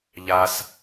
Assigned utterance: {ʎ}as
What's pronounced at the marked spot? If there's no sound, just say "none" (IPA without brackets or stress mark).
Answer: ʎ